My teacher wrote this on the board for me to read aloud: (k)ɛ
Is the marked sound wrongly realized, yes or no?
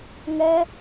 yes